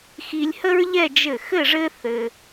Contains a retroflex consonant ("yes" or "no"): yes